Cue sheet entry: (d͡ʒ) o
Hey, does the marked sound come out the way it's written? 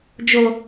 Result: yes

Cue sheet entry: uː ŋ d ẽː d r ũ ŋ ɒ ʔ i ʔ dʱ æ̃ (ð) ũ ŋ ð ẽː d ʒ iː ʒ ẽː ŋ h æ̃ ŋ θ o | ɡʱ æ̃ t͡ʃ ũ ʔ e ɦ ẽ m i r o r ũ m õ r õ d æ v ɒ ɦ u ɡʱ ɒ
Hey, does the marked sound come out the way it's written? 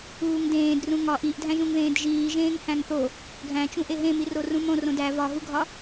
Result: no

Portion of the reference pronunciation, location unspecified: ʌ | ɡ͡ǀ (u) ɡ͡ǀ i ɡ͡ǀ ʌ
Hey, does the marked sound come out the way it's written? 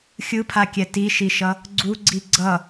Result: yes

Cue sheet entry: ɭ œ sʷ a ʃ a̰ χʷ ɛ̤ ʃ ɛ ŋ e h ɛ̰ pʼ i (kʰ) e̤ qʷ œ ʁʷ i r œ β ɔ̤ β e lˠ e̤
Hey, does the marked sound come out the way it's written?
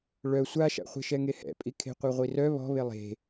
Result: yes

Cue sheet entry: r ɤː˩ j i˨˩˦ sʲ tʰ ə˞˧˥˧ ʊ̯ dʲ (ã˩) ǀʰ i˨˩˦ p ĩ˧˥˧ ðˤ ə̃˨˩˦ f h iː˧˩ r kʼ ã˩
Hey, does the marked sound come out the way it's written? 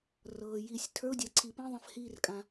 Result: no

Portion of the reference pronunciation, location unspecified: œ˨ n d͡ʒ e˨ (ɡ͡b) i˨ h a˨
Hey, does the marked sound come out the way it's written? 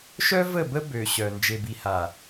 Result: no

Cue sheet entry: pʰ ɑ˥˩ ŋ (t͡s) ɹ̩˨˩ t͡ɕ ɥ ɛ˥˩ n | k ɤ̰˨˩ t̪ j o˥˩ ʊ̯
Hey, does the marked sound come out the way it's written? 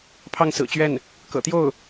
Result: no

